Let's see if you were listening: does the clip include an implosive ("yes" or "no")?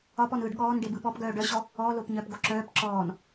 yes